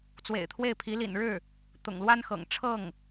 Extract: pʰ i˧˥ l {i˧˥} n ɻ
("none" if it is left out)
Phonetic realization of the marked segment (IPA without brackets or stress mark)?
ḭ˨˩